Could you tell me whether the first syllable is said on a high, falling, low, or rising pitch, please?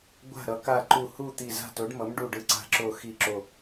falling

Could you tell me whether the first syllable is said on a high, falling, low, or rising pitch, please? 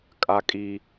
high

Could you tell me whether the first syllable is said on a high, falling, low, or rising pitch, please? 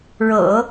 low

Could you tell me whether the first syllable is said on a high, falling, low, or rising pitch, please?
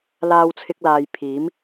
high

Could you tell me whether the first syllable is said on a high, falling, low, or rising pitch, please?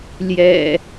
low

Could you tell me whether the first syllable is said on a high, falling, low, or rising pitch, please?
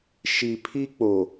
low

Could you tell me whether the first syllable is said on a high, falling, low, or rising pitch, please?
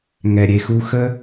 low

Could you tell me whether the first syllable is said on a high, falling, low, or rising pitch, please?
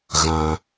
low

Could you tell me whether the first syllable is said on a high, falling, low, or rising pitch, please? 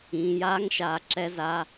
low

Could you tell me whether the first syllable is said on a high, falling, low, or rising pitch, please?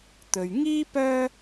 low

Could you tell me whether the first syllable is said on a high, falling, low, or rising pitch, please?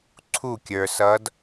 falling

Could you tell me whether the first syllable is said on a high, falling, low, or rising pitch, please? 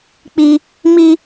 high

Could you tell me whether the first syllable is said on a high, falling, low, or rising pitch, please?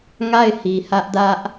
falling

